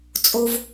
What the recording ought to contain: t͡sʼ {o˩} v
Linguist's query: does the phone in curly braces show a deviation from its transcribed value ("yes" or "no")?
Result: no